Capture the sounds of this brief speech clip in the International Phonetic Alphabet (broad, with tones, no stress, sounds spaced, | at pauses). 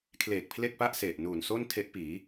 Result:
kʰ l eː˨˩ k̚ pʰ l e˥˩ k̚ p a˥˩ ʔ s e˨˩ ʔ n uː˨˩ n s o˥˩ n tʰ e˦˥ ʔ p iː˩˦